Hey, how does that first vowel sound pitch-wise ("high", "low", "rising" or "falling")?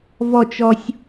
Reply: falling